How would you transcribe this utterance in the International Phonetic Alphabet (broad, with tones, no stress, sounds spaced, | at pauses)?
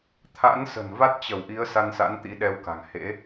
t̪ʰ a̰˧˥ n s ə̤˨˩ n v a˦˥ t̚ t͡ɕ ə˧˩ w ʔ i˨˦ ə̯ s a˧ n s a̰˧˥ n t̪ ḭ˧˥ ɗ ɛ˧ w k a̤˨˩ ŋ h ḛ˧˥